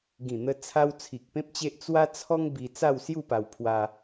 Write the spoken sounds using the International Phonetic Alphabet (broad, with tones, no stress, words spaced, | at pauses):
ɡĩ˨˩n̪ə˧t͡sʰa˧w t͡sʰi˨k̚pẽ˦p̚t͡ɕe˦ʔ t͡swa˦t͡sʰɔ˦ŋbi˧ t͡sa˥˧wsju˥˧pa˧wpʰwa˧